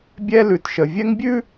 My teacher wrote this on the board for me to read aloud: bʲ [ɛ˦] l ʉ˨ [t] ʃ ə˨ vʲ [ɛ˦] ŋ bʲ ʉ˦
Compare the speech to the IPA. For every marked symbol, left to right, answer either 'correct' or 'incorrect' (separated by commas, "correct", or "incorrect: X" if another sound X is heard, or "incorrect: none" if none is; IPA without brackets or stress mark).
correct, correct, correct